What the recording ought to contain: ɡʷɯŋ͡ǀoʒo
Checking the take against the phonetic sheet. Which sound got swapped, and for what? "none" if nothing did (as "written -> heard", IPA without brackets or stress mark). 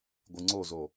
ʒ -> z